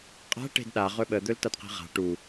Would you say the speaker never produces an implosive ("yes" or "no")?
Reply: no